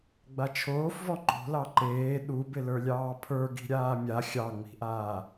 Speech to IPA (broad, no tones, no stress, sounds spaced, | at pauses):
ɡ͡b a t͡ʃʰ oː f v ɔ ŋ͡ǃ o̤ l ɑ ǃ eː ɗ u b ɪ l ə˞ lʲ ɑː pʰ ə˞ ɡ i̤ ɾʲ aː mʲ a xʲ ɑ ŋ͡m i̤ ʔ aː